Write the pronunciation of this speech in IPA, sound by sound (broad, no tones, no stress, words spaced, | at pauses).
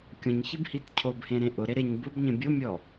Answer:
kʲõɲçibhit cʰobhẽɾẽ ʔʊɾe ɾeɲ bʊbɲẽ bʲomʲɔ